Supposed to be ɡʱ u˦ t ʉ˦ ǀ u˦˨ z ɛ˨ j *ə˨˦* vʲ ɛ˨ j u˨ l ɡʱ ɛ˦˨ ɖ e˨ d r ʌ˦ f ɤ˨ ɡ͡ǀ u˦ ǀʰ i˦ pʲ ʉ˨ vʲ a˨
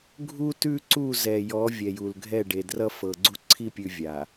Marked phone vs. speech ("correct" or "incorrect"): incorrect